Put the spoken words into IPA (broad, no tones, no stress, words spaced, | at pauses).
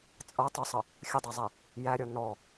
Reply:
t͡sʼʌ tˤʊsˤʌ | xʲədˤɛzˤɛ | jæɾʲɔ nɔ